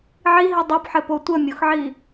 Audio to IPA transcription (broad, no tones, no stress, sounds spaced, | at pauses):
ʕ i ɦ i dˤ o p ħ ɘ p o tʷ ə mʲ o x ʕ i